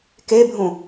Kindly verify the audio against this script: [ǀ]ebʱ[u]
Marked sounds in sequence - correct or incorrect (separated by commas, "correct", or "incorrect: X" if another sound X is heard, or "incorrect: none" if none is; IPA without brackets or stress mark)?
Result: incorrect: k, incorrect: ũ